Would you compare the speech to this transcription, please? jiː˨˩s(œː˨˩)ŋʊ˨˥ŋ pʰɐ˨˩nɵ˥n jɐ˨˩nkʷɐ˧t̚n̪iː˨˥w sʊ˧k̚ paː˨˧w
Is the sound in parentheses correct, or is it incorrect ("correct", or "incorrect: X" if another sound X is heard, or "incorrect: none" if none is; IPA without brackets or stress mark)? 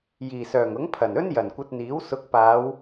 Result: correct